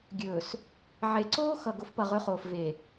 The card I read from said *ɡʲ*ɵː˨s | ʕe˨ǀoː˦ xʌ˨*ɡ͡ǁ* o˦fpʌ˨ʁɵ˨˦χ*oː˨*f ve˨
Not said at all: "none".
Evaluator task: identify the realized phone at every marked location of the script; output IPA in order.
ɡʲ, ɡ, oː˨

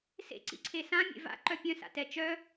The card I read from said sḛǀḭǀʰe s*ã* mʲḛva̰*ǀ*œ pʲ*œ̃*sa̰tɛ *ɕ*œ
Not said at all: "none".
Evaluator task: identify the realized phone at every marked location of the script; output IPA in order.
ã, ǃ, œ̃, t͡ʃ

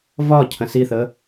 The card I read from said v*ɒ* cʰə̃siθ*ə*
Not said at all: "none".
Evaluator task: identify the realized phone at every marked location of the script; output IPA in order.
ɒ, ə

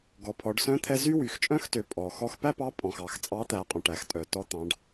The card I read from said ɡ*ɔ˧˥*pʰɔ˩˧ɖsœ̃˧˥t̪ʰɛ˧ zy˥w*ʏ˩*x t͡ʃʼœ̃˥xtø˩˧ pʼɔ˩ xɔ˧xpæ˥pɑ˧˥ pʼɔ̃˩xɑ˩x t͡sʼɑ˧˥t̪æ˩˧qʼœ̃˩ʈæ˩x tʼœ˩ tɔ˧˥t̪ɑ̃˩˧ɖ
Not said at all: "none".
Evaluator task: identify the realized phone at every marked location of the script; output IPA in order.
ɔ˩˧, y˩

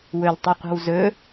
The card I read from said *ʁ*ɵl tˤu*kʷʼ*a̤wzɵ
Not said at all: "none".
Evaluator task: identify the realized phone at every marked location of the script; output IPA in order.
w, qʷ

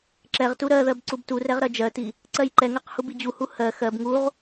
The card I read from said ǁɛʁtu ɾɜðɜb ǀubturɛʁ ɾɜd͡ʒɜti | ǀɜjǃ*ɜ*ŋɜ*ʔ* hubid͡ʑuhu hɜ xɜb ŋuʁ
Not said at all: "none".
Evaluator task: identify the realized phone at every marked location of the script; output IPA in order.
ɛ, q

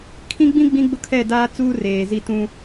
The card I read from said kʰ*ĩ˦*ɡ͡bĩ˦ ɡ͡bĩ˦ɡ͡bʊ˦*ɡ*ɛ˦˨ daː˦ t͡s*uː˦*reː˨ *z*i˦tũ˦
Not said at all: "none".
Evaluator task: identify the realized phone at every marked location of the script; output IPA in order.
ĩ˦, kʰ, uː˦, z

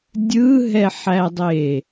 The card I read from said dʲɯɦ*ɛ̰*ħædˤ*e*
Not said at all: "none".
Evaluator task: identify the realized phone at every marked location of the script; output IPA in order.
ɛ, e

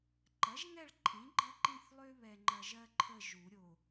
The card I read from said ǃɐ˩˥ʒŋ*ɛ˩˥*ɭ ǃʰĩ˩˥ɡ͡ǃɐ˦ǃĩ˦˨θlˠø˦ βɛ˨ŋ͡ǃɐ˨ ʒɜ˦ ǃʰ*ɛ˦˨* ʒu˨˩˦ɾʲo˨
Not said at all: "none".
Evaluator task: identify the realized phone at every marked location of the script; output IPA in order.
ɛ˦˨, ə˦˨

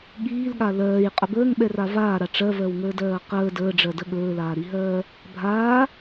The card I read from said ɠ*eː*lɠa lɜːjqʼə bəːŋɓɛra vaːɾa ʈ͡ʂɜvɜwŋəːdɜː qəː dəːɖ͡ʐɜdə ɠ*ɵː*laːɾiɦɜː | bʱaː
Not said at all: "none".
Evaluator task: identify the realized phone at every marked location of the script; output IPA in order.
iː, ɵː

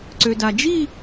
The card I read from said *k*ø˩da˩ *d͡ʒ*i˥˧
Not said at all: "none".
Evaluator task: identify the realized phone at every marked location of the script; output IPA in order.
ǀ, d͡ʒ

